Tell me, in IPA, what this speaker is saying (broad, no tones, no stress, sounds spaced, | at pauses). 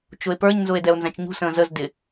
t͡ʃ ʊ e̯ p ə˞ ɲ n z ʊ e̯ d ɛ o̯ n z æ̃ t͡ʃ ɲ ṳ s ə̃ː z ə z d ɪ